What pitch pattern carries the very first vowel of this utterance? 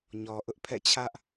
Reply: low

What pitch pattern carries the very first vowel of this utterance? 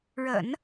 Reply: low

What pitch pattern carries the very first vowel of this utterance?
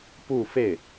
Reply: falling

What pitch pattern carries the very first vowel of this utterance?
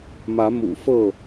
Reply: rising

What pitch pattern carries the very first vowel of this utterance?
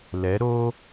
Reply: rising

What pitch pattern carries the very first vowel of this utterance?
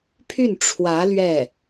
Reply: falling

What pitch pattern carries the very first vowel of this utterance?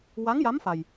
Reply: rising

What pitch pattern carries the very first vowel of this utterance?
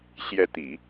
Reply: rising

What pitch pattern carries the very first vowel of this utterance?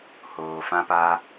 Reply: low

